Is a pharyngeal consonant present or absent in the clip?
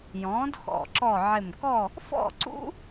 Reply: present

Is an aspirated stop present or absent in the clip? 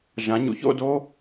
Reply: absent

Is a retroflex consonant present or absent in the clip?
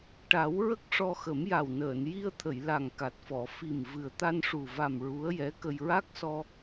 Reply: present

